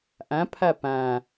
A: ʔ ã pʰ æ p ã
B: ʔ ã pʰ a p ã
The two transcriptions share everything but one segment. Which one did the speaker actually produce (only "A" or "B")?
B